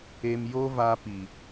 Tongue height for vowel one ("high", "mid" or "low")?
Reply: mid